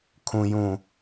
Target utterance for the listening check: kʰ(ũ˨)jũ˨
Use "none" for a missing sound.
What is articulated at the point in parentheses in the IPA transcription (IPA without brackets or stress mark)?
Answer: ũ˨